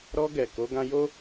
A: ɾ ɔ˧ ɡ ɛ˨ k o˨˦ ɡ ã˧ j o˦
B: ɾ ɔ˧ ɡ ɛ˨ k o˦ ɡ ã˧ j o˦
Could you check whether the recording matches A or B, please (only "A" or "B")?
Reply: A